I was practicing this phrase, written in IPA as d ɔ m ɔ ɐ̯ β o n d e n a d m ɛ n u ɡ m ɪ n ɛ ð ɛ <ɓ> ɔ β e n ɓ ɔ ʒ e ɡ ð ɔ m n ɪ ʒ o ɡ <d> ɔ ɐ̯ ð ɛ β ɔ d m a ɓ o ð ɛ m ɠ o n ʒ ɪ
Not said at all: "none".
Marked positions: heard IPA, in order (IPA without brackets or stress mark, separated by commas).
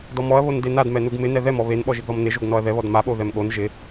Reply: m, n